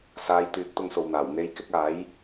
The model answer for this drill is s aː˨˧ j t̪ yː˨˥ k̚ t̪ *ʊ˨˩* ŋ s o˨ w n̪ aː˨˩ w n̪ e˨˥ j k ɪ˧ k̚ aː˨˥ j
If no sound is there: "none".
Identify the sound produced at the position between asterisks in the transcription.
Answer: ʊ˧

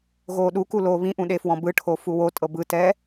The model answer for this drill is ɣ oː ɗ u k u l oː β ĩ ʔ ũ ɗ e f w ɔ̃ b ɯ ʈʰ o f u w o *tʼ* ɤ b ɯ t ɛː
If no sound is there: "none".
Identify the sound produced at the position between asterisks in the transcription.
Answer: tʼ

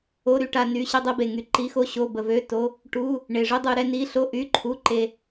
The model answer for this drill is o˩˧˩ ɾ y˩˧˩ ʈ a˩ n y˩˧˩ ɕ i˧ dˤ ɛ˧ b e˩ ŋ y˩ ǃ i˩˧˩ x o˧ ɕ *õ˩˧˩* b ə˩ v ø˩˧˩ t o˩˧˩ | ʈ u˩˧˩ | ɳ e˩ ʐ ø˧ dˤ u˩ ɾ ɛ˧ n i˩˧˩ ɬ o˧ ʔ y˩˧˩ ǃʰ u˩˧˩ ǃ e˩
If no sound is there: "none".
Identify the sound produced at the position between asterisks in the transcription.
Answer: o˩˧˩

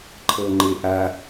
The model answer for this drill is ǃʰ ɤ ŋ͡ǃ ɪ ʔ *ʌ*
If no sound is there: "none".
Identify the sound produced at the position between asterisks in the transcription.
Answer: a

